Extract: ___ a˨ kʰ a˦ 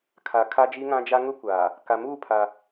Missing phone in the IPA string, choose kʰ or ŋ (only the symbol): kʰ